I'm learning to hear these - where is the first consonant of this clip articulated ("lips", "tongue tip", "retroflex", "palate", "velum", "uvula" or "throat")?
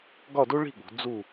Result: velum